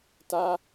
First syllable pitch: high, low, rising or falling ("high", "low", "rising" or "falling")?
high